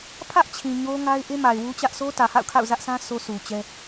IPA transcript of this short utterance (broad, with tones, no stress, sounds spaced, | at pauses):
pʰ ä˦ ʔ t͡ɕʰ ĩ˨ ɲ o˦ ŋ a˦ ɪ̯ ʔ e˦ m a˨ ɪ̯ w u˦ t͡ɕ ä˦ ʔ s o˦ t ä˨ h a̰˦˨ ʊ̯ kʰ a̰˦˨ ʊ̯ z ä˦ ʔ s ã˦ sʰ o˦ s u˨ t͡ɕ ɛ˦